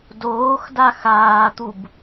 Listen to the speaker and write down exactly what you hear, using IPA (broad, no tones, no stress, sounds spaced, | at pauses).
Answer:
d oː x d a x aː t̪ u b